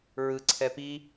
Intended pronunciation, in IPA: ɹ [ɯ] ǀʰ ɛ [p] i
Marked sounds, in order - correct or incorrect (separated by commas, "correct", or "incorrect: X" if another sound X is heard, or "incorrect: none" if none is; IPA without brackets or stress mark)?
correct, correct